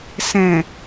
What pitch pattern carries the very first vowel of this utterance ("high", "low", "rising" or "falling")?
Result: low